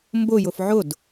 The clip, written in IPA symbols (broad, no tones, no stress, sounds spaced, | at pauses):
m b ʊ j ʊ f ʕ ʊ d